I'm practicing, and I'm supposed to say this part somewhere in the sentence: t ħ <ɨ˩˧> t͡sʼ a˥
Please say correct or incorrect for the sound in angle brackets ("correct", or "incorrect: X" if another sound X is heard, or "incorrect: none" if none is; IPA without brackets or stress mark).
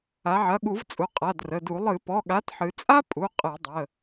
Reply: correct